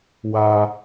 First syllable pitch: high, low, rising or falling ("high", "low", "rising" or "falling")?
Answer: low